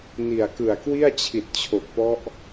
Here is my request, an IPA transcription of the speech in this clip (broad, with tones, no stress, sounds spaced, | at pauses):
n i˨˩ a̯ k ɯ˨˩ a̯ k w i˥˩ a̯ t͡ɕʰ i˨˩ t̚ t͡ɕʰ o˨˩ k̚ p ɔ˦˥ ʔ